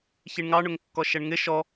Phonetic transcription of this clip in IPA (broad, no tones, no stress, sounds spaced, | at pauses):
ç i ɳ ŋ ɑ ɳ ʊ ŋ kː ɔ ʃ ɛ ɳ ŋ ɪ ʃ ɔ